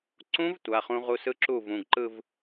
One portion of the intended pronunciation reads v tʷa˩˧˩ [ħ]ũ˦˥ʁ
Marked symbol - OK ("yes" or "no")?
no